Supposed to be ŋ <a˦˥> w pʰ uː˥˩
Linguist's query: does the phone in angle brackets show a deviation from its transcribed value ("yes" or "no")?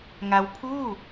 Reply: no